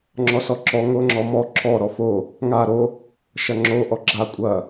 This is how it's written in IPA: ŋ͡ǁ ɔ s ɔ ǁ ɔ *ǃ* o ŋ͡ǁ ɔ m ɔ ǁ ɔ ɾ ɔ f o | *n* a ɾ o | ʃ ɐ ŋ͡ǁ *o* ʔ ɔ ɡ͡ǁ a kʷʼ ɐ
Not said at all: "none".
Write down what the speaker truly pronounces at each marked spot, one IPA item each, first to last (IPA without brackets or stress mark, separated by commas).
ŋ, ŋ, o